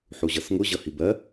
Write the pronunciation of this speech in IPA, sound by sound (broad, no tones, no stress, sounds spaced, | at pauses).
ħ u ʑ ʌ s ŋ ʊ ʑ ʌ h i b ɜ